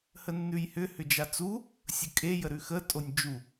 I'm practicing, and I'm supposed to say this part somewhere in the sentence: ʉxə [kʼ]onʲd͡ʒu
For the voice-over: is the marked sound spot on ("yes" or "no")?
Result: no